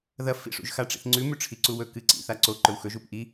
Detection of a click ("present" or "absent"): present